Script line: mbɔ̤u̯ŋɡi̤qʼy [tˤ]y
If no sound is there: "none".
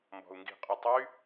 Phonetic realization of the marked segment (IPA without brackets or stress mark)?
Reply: tˤ